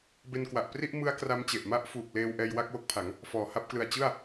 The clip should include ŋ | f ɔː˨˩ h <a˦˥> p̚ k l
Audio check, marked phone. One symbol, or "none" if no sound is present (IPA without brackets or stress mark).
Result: a˥˩